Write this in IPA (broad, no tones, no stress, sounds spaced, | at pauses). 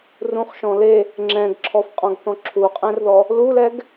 r ũ χ ʃ ɔ̃ l e | ŋ͡ǁ ɛ̃ ɡ ǁʰ ɔ f qʼ ɔ̃ ɡ θ ɔ̃ ǁʰ u qʼ ɛ̃ r ð ɔ | l u l ɛ ɡ